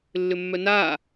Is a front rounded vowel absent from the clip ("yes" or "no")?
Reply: no